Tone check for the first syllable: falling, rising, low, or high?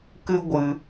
high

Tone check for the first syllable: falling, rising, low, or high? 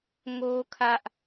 high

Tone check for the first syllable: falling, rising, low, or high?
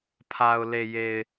low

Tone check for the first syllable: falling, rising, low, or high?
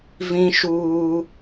high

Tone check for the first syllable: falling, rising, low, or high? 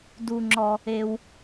low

